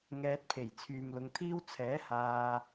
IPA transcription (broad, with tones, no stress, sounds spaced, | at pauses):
ŋ ɛː˧ t̚ pʰ e˨˩ j t͡sʰ yː˨ m l ʊ˨˧ ŋ t̪ʰ iː˥ w t͡sʰ ɛː˨˥ h aː˧